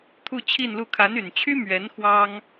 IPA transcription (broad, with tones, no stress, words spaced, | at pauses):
t̪ʰu˥˧t͡ɕʰi˥˧nlu˥˩ kʰa˧˥ny˨˩nt͡ɕʰy˥ mɥɛ˧˥n xwɑ˥ŋ